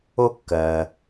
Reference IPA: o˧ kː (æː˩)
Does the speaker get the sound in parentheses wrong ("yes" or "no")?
yes